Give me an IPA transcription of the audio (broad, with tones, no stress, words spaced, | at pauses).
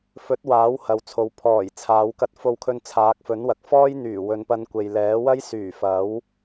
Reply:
fɵ˨˥t̚ waː˨˥whɐ˨wt͡sʰo˨w pʰɔː˨˩j t͡sʰaː˨˧wkɐ˧t̚fo˧wkʰɵ˧n t͡sʰaː˨˥k̚fɵ˨˥nwɐ˨k̚ fɔː˥jn̪yː˨˩ wɵ˨˧npɐ˧n kʷe˨jlɛː˨˥ wɐ˥jsyː˨˩ fɐ˨˥w